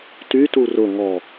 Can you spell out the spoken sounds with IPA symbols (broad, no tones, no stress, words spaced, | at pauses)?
tytu rʊ ŋɔ